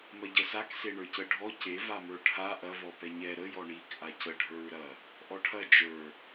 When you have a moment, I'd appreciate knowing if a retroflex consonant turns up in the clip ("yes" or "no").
yes